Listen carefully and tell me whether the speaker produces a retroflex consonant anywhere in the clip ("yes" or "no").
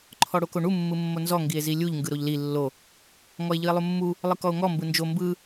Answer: yes